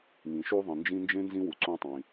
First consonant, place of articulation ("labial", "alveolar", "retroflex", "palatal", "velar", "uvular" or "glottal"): velar